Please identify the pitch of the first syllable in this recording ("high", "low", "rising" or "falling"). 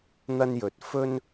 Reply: high